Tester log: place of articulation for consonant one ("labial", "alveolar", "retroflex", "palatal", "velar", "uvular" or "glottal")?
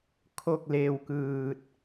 velar